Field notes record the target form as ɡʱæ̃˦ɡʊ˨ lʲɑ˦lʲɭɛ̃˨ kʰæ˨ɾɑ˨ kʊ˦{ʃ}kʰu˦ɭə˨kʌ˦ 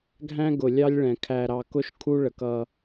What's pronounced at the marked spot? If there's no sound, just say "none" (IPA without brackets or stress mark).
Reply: ʃ